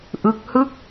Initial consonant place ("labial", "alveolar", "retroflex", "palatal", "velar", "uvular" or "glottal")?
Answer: glottal